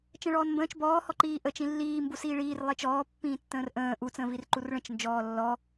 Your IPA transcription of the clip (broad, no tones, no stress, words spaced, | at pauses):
t͡ʃə̃ɭɔːnmbə̃ːt͡ʃ bɔːhɔǃiː ʔət͡ʃĩ lːiːmbu siːɭiːr lˠet͡ʃɔːpːĩː tːə̃ːrʔə̃ː ʔut͡sə̃ːvir ǃurɭə̃t͡ʃ nd͡ʒɔːlːɔ